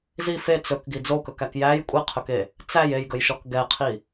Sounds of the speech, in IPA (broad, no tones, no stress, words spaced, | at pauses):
zi fe t͡sɵkɡi d͡zokɵkæk jæj kʷʼiqʰɵke | t͡sæj ejɡəjʃɔk ɡɛqʰi